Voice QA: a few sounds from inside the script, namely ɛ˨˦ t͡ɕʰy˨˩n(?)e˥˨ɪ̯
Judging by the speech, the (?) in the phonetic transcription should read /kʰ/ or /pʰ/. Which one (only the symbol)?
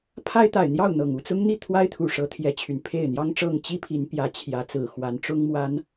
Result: pʰ